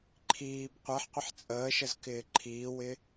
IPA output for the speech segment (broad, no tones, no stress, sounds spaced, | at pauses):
ǃʰ iː b qʷ ɛ ħ qʷ ɪ ħ t͡sʼ əː ʃ ə z k ɪː ǃʰ iː w ɪ